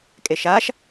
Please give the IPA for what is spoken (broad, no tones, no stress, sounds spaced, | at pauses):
kʼ e ʃ a ʃ